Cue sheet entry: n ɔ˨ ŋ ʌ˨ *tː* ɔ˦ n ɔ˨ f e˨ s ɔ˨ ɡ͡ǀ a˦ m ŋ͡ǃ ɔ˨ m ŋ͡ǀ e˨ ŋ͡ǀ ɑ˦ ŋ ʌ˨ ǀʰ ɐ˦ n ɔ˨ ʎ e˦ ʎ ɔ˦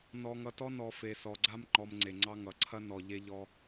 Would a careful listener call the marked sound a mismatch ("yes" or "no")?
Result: yes